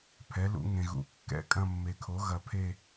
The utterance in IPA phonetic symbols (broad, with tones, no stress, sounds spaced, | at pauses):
pʰ ɛ˩˥ l ṵ˨˩˦ ŋ ẽ˨ ɣ ṵ˨˩˦ kː ɛ̰˦˨ kʼ ɐ̃˦˨ mː e˨ kʰ o˩˥ ɣ ɐ˨ pʰ e˦˨